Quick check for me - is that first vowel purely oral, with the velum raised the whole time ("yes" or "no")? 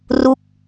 yes